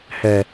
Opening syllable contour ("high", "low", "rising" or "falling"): low